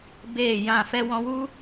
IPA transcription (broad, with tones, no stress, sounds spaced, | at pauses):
b eː˦˨ j ã˦˨ f ɛ˧ w ɔ̃˧ w u˦